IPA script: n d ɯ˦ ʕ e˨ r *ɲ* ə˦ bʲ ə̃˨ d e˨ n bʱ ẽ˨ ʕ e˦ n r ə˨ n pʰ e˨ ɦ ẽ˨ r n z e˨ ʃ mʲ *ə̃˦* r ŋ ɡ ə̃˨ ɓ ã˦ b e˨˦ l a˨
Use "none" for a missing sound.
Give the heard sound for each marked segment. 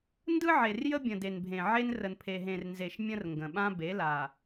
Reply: j, ə̃˦

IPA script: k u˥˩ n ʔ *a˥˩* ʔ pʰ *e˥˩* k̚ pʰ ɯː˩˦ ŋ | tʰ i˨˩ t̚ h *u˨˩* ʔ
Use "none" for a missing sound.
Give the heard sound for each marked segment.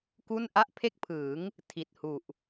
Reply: a˥˩, e˥˩, u˨˩

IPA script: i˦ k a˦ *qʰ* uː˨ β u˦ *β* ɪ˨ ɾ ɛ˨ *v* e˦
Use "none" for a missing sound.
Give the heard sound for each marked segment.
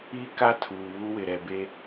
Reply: tʰ, w, b

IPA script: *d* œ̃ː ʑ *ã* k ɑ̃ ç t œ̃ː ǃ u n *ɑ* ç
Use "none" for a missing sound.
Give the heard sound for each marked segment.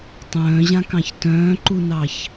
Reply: tˤ, ã, ɑ

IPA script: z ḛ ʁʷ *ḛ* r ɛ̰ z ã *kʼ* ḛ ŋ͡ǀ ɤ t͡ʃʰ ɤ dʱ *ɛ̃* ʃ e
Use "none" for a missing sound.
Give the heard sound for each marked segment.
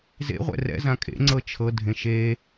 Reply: ɛ̰, kʼ, ẽ

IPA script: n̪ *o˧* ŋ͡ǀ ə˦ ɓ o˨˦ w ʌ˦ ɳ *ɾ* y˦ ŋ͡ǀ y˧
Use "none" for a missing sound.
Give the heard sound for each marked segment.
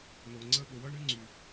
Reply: o˧, ɾ

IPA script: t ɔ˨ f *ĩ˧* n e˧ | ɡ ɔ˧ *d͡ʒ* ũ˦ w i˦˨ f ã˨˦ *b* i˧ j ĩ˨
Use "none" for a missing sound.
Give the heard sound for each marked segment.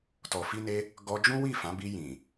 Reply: i˧, d͡ʒ, b

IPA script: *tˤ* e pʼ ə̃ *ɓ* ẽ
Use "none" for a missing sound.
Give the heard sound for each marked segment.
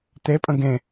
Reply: t̪, ɡ

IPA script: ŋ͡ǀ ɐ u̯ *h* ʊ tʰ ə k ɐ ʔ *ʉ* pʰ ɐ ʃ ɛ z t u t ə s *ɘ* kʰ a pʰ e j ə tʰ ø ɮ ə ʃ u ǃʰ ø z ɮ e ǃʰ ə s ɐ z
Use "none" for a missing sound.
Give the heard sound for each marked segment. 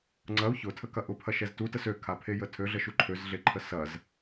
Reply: ç, ʊ, ø

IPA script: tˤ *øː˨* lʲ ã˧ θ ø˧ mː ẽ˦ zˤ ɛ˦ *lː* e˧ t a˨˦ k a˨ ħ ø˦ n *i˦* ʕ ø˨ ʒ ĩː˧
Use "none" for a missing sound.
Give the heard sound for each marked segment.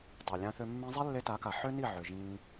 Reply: ø˨, lː, i˦˨

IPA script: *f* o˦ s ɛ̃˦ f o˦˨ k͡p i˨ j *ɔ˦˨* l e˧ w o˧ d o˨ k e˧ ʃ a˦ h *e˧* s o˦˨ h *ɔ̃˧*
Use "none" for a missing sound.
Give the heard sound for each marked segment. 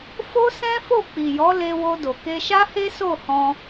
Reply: f, ɔ˨˦, e˦, ɔ̃˧

